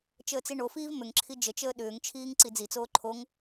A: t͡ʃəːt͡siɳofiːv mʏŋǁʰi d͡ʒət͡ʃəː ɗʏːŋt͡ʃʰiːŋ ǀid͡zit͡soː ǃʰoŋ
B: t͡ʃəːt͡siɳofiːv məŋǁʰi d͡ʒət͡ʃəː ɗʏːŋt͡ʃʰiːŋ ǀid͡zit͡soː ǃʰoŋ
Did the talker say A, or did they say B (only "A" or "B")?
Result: A